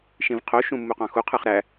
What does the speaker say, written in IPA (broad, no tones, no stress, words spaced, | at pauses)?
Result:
ʃĩvqʰoʃũ mːuqɑ̃xuqʰɯχ ɾæ